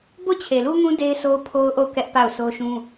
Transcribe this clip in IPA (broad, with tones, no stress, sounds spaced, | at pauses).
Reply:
b o˦˨ t͡ɕʰ e˨ l u˦ ŋ ũ˦ d e˦ ɪ̯ s o˦ ʊ̯ pʰ o˦ ʊ̯ ʔ o˦˨ ʊ̯ k ɛ˦ ʔ p a˦˨ ʊ̯ s o˦ ʃ ũ˦